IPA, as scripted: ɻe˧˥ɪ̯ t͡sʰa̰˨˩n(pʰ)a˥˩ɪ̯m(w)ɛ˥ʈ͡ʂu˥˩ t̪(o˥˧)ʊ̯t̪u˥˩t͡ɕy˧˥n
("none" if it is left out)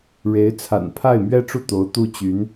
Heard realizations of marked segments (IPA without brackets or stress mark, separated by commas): pʰ, ɥ, o˧˥